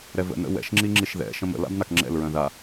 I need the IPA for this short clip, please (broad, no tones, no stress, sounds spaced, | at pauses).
ɾ ɛ v ə̰ n ə̰ w ɛ̰ ʃ ŋ͡ǁ i ŋ͡ǁ i ʃ ð ɛ̰ ʃ ə̃ m ə̰ l a̰ b n a k ŋ͡ǁ ɛ̰ l ɹ œ̃ ð a